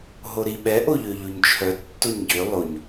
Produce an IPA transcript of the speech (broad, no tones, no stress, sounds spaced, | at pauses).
ɦ o ɾ i ɓ ɛ ʔ o ʎ ø ʎ o ɲ t͡ʃʰ œ tː o ɲ ɟ ø lˠ o ɲ